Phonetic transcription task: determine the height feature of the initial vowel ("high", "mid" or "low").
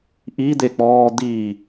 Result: high